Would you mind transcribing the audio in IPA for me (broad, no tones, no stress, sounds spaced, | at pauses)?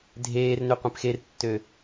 dʱ eː r n ø qʷ ẽ p x e r tː ø